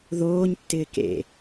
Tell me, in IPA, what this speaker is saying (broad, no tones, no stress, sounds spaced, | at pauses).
ð oː ɲ tː ɪː k ḛ